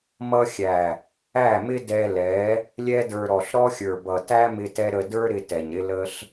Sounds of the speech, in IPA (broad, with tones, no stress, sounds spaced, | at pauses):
m ʌ˧ xʲ æ˨ | æ˦˨ m ɪ˦ d ɛ˧ l ɛ˨˦ | lʲ ɛ˧ d ə˞˨ ɾ ɔ˨ ɬ ɾ ɔ˧ xʲ ə˞˨ b ʌ˨ t æ˦ m ɪ˧ t ɛ˧ ɾ ə˨ d ə˞˧ ɾ ɪ˧ t ɛ˨ ɲ ɾ ɪ˧ l ə˧ ɬ